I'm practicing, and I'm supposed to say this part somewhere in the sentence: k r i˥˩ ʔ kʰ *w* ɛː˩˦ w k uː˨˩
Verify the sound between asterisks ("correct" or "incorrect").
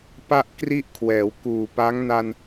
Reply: correct